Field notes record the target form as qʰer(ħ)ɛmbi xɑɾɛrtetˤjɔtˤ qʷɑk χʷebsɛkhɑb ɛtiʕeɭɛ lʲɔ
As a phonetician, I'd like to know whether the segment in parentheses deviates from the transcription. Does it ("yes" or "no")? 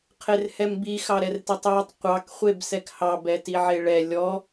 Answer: yes